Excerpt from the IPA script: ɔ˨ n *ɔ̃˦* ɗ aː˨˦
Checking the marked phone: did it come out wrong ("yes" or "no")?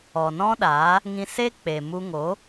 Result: no